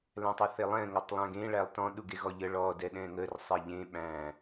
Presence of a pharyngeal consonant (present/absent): absent